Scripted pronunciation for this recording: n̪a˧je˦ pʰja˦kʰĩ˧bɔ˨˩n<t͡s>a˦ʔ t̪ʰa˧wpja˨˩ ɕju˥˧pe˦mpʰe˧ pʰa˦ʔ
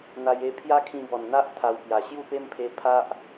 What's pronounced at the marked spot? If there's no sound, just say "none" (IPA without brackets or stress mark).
n̪